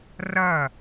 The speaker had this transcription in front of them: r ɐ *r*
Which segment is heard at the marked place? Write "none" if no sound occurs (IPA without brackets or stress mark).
none